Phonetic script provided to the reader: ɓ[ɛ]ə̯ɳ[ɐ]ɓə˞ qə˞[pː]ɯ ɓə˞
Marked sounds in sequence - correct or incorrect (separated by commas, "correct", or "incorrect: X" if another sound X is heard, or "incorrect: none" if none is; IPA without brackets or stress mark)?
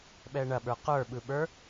correct, correct, incorrect: ɓ